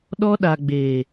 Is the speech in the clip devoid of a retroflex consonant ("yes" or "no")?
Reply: yes